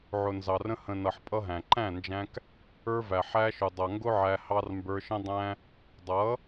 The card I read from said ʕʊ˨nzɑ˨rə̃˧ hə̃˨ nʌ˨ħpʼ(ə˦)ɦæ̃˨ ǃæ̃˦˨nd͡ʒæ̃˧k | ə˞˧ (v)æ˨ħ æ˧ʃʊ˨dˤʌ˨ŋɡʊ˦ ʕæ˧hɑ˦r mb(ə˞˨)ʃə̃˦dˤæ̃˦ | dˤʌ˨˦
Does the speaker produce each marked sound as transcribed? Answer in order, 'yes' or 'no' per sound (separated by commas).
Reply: no, yes, no